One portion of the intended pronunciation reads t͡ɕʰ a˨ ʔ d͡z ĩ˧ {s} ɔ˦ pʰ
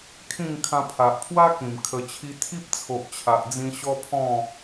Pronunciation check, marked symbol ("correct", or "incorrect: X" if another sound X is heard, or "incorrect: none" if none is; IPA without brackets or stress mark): incorrect: ɕ